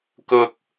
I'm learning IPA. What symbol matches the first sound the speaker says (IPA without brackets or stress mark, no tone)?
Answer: k